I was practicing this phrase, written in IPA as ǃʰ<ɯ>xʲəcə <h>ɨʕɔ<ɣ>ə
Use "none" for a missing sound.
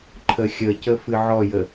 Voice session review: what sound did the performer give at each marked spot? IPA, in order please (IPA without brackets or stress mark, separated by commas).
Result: ə, f, j